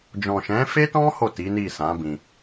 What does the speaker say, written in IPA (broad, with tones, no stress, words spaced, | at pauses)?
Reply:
d͡ʒɔ̃˨ʃɛ̃˨˦fe˦tɔ̃˦ ho˦˨ti˨˦ni˦˨sã˨˦ bĩ˧